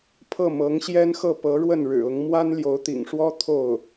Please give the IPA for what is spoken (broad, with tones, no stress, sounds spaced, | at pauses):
pʰ ɤ˥˩ m ɤ˧˥ ŋ ɕ j ɛ˥ n x ɤ˥˩ p ɤ˧˥ ɻ w ə˥˩ n ɻ ɻ̩˨˩ ʊ˧˥ ŋ m w a˥ n l j o˧˥ ʊ̯ t̪ ḭ˨˩ ŋ ʂ w ɔ˥ t̪ʰ o˥˩ ʊ̯